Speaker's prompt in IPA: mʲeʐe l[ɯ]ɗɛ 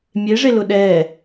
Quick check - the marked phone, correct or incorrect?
incorrect